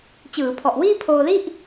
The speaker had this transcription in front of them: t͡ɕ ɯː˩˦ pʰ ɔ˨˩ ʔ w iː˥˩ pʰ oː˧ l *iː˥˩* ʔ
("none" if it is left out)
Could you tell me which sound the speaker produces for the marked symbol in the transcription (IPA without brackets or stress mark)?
i˥˩